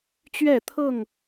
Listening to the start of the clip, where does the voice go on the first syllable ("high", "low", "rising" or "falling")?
falling